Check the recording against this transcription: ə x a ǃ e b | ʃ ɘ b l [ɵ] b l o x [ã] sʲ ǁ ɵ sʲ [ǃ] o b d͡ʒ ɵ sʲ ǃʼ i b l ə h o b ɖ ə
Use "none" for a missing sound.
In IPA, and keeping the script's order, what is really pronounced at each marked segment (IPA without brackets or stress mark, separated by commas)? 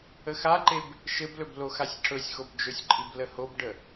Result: ɵ, a, x